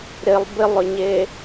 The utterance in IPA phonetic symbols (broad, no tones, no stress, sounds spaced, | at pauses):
ɾ ɪ lˠ b ɪ lˠ ʏ ɲ e